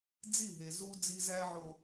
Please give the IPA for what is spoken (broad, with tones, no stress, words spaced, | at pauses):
d͡zi˦˨ɦe˨ zu˦ d͡zi˦zæ˦ʕo˨